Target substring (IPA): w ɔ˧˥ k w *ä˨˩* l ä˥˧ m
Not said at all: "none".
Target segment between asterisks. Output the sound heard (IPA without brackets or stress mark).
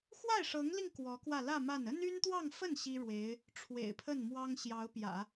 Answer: ä˥˧